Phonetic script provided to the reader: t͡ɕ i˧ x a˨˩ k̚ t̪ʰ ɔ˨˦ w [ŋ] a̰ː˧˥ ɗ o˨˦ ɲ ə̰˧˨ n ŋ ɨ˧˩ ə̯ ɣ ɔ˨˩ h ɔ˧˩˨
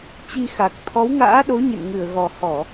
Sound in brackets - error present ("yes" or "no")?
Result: no